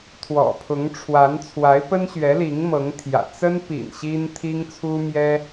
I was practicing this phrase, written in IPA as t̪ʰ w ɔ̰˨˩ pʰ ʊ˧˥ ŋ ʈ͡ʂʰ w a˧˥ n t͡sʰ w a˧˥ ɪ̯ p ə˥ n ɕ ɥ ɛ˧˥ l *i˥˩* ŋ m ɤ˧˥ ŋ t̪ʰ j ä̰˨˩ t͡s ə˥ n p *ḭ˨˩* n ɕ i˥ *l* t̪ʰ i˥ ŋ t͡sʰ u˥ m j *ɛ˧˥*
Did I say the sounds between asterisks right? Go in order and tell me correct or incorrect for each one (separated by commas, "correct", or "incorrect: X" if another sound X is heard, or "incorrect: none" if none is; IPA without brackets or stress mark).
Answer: incorrect: i˧˥, correct, incorrect: n, incorrect: ɛ˥